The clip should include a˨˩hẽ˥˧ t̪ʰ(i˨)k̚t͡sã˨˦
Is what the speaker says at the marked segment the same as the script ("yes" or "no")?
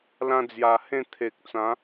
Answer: no